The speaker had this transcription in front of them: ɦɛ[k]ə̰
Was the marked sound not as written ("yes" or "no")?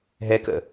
no